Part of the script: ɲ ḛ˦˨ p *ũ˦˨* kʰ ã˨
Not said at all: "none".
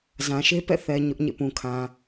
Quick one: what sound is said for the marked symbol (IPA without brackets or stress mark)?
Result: ũ˨